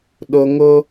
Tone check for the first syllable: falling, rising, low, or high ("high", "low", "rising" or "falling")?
low